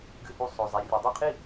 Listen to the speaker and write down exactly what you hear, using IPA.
ɡ ɨ˧ h u˧ sˤ o˨ zˤ e˨ rʲ ɨ˨ dˤ o˦˨ qʰ i˦˨

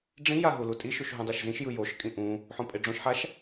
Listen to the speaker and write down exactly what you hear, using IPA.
ɖ͡ʐ ĩ j a ɦ u l u tʼ i ʃ u ʃ ɦ ũ dˤ e ʃ z ĩ ʃ j ɯ j o ʃ kʼ ĩ ʔ ũ | ħ õ pʼ e ɖ͡ʐ õ ʃ ħ a ʃ

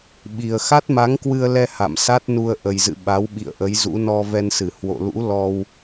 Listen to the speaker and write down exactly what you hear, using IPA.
ɓ i˨˩ ə̯ x a˦˥ t̚ m a˨˦ ŋ k w ɨ˧ ə̯ l ɛ˧ h a̰˧˨ m s a˦˥ t̚ n u˧ ə̯ ʔ ə˨˩ j z ɨ̰˧˨ ɓ a˨˦ w ɓ ḭ˧˨ ə̯ ʔ ə˨˦ j z ṵ˧˥ n ɔ˧ v ɛ˧ n s ɨ˧˩ h w o̰˧˨ l ṵ˧˥ l ɔ˧ w

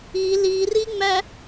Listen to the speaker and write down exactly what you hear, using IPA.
i l i r i ŋ͡m æ

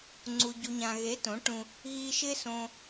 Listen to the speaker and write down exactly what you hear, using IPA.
ŋ͡ǀ u˨ ɟ u˨ ɲ ã˨ ɣ e˨˦ t õ˨˦ ʈ ũ˧ | ɣ i˧ ʃ ɪ˦ s õ˧

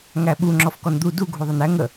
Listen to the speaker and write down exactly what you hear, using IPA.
ŋ æ ɓ u ŋ͡ǁ ɔ f k ɔ n d̪ u d u ɡʱ u ðˤ ə n æ ŋ ə

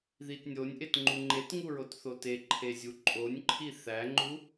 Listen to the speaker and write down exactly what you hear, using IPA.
ð i t nʲ o nʲ ʔ e t ŋ͡ǃ u ŋ͡ǃ e t ŋ u ɹ o t θ o t e ǃʰ e zʲ u ǃʼ o nʲ ǃʰ i θ æ ŋ͡ǃ u

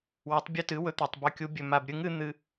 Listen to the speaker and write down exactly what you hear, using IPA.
w ɐ˨˥ tˤ bʲ ʉ˦ t ɨ˨˥ w ɵ˦ t̪ e˨ tˤ b ʉ˨ kʲ u˨˥ bʲ ɵ˨ m a˨ b ɾʲ ɨ˨˥ ŋ ɨ˨˥ n̪ ɨ˦

